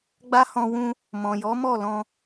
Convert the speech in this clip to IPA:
ɡ͡b a˦ h ɔ̃˧ w ũ˧ | m ɔ̃˨ j ɔ˨˦ m ɔ˦˨ l ɔ̃˧

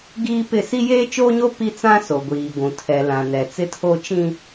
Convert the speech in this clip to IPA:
ɡ iː˦ p ɪ˦˨ s i˦ j eː˦ t͡ʃ oː˦ ɲ o˦ p i˦ t͡s ã˦ s o˨ ɡʷ iː˨ ɡʷ ũ˨ tʰ ɛ˨ l ã˨ n ɛ˨ t͡s ɪ˦ tʰ o˦ t͡ʃ ĩ˦

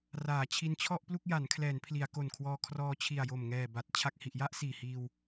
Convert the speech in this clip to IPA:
r aː˩˦ t͡ɕʰ i˧ n t͡ɕʰ ɔ˥˩ ʔ p l u˥˩ k̚ j a˩˦ n kʰ l ɛː˩˦ n pʰ l i˩˦ a̯ k o˨˩ n kʰ w ɔː˧ kʰ r ɔː˧ t͡ɕʰ i˨˩ a̯ j o˨˩ m ŋ ɛː˨˩ b a˨˩ t̚ t͡ɕʰ a˨˩ k̚ h i˨˩ ʔ j a˥˩ ʔ s iː˨˩ h iː˧ w

